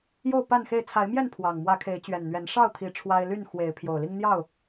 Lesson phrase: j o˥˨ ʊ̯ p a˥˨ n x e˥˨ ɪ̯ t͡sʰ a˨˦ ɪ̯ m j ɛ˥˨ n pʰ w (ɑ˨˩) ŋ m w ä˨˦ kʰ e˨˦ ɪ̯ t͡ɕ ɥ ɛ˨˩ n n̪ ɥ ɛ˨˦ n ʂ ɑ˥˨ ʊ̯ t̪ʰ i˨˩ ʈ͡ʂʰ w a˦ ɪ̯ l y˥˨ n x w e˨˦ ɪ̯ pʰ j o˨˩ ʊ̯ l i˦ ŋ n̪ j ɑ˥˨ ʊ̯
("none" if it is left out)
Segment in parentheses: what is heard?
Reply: ɑ˨˩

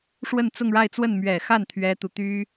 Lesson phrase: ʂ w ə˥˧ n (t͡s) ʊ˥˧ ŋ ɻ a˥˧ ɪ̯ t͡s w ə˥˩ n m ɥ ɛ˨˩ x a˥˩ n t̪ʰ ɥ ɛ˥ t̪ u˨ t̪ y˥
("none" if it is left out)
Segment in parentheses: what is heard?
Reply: t͡s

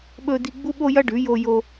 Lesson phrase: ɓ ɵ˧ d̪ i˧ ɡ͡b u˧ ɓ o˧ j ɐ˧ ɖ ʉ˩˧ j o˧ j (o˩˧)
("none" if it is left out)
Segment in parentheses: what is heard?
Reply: o˧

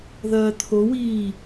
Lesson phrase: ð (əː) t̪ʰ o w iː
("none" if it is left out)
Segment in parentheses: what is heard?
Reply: ɐː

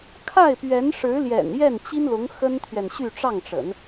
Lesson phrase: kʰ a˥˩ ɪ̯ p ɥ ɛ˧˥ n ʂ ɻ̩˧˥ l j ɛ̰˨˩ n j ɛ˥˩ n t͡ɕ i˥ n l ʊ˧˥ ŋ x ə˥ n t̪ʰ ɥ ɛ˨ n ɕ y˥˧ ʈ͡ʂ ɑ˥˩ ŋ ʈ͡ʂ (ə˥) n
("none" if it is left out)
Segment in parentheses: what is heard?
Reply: ə̰˨˩˦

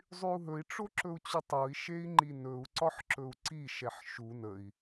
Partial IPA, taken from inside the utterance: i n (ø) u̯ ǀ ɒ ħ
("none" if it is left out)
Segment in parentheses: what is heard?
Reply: ɵ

